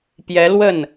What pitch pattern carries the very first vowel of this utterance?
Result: rising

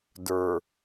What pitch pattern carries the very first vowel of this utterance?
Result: low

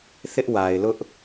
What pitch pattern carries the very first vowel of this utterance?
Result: high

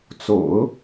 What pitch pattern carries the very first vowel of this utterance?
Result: low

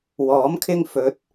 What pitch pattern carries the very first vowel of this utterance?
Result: rising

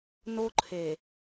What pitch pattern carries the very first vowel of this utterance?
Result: high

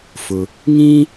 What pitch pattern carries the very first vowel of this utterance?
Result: low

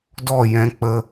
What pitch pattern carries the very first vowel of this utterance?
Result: falling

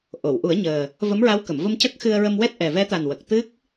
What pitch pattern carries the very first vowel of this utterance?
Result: low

